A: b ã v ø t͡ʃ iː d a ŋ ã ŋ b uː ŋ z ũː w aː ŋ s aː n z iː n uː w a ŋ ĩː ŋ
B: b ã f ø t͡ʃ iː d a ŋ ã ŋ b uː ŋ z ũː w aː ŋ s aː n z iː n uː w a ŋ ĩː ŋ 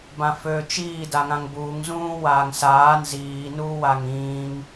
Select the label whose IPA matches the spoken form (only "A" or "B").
B